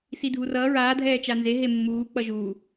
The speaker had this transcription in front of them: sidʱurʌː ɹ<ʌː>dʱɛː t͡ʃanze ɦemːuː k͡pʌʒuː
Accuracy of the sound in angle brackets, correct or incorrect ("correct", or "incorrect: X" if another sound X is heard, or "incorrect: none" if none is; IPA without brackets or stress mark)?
incorrect: aː